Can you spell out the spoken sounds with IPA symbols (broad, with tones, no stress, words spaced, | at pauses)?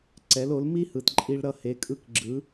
ǀɛ˩˥lo˩˥l mi˥hɯ˩t ǃʼi˧ɭ ɾʌ˥˩he˩˥ kʼɯ˥˩kɡ͡ǁɯ˩˥